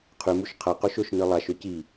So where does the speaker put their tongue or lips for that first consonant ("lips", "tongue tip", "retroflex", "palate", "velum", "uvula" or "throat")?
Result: uvula